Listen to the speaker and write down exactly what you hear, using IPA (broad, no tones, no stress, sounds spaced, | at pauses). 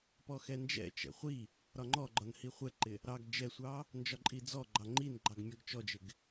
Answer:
p ɔ x ɛ n d͡ʒ ɛ̰ t͡ʃ ɛ̰ χʷ i | ɾ ɒ ŋ͡ǃ ɔ ɡ͡ǃ ɒ n h i χʷ ɛ ǃ ɪ | ɾ ɑ ɡ d͡ʒ ɛ sʷ ɑ | n d͡ʒ ɒ ǃʼ i d͡z ɔ ɡ͡ǃ ɑ ŋ͡ǃ i n ɡ͡ǃ ɑ ɡ mʲ ɒ ɡ t͡ʃ ɔ d͡ʒ ɪ ɡ